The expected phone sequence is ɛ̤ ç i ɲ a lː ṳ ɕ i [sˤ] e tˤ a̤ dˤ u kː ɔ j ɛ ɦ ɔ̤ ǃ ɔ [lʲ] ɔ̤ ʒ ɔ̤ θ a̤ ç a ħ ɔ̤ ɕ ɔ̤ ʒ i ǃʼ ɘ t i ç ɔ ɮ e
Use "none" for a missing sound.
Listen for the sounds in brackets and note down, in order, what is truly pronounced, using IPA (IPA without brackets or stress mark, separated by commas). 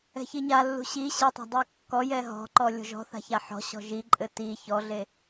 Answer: ɕ, lʲ